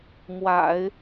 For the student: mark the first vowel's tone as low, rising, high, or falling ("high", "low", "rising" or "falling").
low